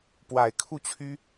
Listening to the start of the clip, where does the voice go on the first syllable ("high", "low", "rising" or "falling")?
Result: low